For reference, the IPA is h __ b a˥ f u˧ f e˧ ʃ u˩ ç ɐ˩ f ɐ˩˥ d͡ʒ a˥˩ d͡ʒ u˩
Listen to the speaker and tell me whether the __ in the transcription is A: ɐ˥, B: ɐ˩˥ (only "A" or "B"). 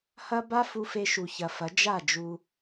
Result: A